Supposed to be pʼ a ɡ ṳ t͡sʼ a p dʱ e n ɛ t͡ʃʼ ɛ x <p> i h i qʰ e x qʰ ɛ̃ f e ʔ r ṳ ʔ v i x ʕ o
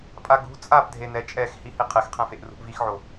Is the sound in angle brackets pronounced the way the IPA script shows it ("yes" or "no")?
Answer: no